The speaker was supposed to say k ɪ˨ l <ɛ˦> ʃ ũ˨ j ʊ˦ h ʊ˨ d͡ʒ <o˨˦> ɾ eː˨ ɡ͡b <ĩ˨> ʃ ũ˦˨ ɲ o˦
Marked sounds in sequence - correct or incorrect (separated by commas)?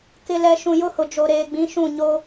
incorrect, incorrect, incorrect